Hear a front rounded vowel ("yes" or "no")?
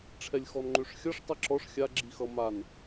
yes